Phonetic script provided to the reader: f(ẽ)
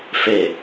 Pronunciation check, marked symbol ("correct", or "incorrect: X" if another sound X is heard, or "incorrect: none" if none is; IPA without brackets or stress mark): incorrect: e